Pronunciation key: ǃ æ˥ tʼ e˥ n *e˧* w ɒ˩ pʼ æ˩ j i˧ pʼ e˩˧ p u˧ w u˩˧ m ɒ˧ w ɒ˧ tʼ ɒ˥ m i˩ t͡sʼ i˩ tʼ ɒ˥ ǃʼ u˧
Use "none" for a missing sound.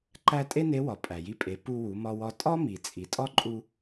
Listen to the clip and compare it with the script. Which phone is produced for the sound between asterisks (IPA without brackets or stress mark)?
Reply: e˧˥